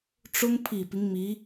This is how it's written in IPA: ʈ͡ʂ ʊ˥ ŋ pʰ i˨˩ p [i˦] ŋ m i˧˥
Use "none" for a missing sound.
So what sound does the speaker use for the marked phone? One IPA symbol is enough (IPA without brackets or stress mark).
i˦